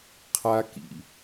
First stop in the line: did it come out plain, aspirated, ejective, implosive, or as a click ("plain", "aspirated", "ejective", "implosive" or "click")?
aspirated